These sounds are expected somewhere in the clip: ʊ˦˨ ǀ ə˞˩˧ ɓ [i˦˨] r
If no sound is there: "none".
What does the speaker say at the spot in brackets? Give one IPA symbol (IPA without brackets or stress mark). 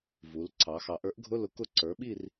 i˦˨